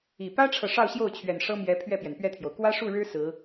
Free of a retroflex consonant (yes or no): no